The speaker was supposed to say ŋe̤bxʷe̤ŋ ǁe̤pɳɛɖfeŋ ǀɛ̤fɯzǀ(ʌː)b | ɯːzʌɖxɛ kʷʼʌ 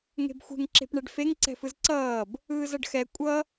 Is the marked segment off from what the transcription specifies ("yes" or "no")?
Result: no